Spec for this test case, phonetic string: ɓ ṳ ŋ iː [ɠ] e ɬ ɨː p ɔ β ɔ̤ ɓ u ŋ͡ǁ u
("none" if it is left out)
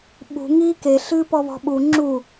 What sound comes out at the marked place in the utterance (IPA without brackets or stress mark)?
k